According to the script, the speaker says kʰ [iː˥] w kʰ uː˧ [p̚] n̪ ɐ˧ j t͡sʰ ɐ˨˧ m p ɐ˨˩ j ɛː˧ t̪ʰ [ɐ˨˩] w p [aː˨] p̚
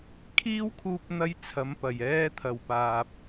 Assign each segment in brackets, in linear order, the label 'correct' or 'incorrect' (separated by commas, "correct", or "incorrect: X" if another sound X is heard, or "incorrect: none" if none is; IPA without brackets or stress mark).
correct, correct, correct, correct